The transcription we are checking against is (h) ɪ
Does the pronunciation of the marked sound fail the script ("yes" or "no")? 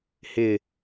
no